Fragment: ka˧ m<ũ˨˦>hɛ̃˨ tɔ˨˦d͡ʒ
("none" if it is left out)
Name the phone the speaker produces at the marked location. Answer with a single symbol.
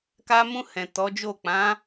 ũ˧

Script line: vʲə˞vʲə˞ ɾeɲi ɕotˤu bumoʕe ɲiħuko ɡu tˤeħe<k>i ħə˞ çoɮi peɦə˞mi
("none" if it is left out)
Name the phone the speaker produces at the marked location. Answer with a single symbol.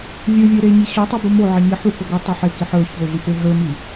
k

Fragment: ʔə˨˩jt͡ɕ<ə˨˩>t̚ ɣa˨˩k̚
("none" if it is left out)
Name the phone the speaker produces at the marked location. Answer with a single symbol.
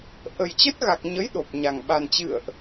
ə˦˥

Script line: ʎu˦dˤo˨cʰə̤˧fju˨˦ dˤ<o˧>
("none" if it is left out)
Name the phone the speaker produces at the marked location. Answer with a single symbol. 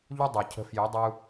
u˧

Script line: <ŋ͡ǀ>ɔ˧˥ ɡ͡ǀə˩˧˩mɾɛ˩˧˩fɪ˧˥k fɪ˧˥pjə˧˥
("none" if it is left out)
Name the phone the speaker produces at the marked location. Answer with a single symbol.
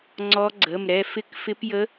ŋ͡ǀ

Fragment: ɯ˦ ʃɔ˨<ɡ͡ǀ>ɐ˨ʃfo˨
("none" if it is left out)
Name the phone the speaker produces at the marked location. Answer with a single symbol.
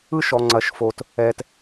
ŋ͡ǀ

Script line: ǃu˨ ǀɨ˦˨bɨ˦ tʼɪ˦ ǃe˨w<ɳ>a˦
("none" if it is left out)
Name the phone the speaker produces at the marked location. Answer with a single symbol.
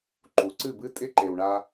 ɳ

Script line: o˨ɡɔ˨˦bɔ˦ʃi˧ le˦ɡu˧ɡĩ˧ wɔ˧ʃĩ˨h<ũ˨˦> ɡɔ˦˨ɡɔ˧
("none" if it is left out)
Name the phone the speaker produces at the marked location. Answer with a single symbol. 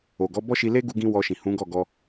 ũ˨˦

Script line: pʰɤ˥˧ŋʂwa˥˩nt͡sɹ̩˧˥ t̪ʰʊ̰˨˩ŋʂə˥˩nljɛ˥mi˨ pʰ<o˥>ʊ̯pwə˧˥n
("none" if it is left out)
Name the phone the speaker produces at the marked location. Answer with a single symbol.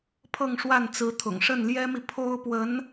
o˥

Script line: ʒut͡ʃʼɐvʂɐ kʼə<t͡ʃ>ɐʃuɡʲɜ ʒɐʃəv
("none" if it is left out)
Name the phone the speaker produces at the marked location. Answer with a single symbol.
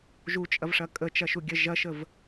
t͡ʃ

